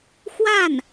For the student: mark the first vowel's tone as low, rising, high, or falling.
falling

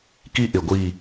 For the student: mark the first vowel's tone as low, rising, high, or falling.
high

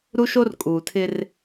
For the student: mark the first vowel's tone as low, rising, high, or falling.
high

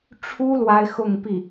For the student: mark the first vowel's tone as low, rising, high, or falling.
high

